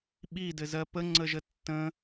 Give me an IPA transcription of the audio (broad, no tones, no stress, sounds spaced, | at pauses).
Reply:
ɓ i d ɘ z ɜ p ə ŋ͡ǀ ə ʒ ə tː ə̃